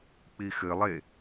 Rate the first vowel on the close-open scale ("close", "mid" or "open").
close